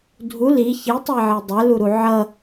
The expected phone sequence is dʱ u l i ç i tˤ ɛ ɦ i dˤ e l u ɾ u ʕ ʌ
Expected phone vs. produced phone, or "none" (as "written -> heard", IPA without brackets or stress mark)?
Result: ɦ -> ʕ